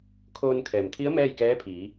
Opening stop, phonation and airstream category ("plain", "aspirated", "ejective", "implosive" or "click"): aspirated